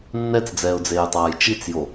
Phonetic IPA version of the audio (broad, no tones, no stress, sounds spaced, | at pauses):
nː ɛ t͡s d͡z ɛː ʊ̯ d͡z eː j tˤ aː j t͡ʃ i t͡s j o